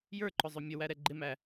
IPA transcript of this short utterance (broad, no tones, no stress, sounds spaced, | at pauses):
j ə˞ ǃ ʊ zˤ ʊ mʲ ə w æ ɾ ɛ ɡ͡ǃ ɪ m æ